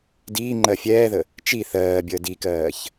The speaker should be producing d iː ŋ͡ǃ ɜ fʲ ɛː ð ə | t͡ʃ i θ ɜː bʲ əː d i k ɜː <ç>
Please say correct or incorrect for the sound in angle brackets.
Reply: correct